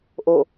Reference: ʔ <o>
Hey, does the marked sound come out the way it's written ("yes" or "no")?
yes